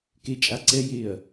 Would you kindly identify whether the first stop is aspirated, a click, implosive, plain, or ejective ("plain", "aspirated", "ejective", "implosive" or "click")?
plain